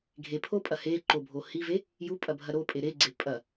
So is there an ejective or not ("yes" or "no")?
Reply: yes